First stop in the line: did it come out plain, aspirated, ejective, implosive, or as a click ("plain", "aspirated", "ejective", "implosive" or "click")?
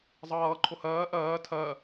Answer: click